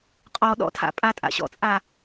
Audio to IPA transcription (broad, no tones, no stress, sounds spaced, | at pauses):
qʼ ɔ ɗ ɔ̰ tʰ a̰ pʼ a tʼ a̰ ɕ ɔ̰ t͡sʼ aː